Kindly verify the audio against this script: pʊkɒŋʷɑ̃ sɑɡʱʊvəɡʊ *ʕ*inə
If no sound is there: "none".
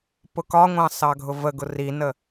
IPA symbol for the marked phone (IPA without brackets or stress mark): r